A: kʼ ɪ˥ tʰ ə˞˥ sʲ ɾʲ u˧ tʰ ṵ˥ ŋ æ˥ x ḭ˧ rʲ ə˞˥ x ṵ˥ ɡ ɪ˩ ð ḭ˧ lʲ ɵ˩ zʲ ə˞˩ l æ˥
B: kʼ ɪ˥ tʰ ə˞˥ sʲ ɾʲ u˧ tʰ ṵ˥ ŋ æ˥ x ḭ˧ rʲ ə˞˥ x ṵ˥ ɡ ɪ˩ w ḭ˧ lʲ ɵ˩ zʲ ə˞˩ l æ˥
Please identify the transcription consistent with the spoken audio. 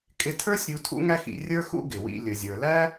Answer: B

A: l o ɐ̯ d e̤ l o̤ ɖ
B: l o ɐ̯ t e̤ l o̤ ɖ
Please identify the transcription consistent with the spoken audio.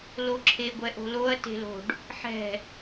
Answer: B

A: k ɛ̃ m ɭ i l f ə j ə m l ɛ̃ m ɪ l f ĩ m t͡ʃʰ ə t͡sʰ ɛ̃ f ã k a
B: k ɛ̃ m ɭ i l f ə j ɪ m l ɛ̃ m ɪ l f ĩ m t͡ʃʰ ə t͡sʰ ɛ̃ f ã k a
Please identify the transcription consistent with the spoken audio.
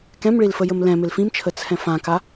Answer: A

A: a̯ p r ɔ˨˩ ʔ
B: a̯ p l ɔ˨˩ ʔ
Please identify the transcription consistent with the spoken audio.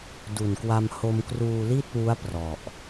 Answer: A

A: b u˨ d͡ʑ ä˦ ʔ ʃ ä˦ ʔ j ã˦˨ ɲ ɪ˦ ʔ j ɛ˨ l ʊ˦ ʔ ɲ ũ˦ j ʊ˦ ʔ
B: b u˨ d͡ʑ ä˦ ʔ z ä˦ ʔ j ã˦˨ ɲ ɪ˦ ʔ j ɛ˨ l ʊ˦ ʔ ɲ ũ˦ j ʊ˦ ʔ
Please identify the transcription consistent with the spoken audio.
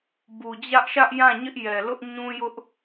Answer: A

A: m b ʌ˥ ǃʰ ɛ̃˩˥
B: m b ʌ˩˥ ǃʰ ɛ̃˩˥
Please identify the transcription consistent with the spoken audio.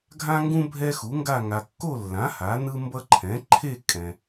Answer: A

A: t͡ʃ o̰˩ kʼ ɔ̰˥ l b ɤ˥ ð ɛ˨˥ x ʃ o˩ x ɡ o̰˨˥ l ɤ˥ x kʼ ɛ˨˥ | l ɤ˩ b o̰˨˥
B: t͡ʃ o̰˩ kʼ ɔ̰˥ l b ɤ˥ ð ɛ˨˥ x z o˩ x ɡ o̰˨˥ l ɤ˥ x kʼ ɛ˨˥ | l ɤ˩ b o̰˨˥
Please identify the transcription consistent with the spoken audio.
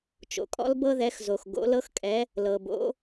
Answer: B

